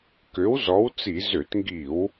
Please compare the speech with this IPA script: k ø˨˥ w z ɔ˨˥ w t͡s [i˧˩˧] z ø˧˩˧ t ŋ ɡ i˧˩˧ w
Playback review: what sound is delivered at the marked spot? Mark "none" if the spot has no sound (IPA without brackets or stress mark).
i˧˩˧